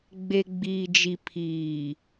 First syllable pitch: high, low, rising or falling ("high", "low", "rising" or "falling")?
low